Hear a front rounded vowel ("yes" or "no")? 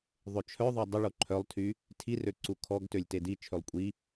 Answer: yes